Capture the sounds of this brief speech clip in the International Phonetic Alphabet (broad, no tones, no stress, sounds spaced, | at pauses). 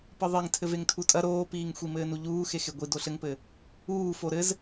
p ɨ ðˤ e ŋ tʰ ɘ v e ŋ tʰ u tʼ ɐ ɾ oː p iː ŋ xʷ i m ɘː n u ʎ uː x e x e ɡʷ i d o ɬ ɘ ŋ p ɘ | uː f o ɾ ɘ z